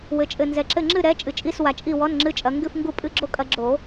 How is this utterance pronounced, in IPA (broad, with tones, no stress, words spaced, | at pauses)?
wɘ˨t͡ʃʼɘ˨nzɛ˨ǁɘ˦˨ ŋ͡ǁɨ˦˨ɾɛ˨˦ t͡ʃʼɨ˨t͡ʃʼi˧˥˧s wa˨t͡ʃʼi˦˨ wɔ˧˥˧nŋ͡ǁɨ˧˥˧t͡ʃʼɐ˨˦ ŋɡɨ˦˨fŋɡu˦˨ pʼɨ˧˥˧ɡ͡ǁo˦˥kʼɐ˨˦ɡ͡ǁo˨˩˦